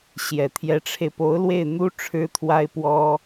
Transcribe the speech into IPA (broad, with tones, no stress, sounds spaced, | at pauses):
ɕ j ɛ˨˩ t̪ʰ j ɛ˧˥ ʈ͡ʂʰ e˧ ɪ̯ p o˧˥ ʊ̯ l w e˥˩ ɪ̯ n̪ u˥ ʈ͡ʂʰ ɻ̩˥ t̪ʰ w a˥ ɪ̯ p w ɔ˥